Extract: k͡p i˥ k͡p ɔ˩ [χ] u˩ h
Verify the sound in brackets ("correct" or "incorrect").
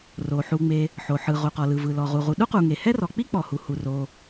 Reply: incorrect